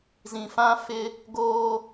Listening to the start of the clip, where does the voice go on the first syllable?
low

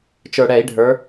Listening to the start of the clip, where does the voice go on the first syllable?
low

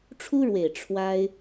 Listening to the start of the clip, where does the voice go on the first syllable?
high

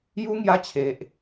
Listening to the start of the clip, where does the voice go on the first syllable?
high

